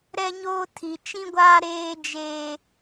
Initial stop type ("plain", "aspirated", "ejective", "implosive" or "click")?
aspirated